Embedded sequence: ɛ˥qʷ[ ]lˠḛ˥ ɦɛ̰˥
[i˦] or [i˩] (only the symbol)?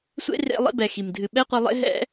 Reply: i˦